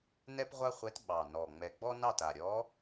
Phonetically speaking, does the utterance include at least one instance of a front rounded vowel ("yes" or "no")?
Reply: no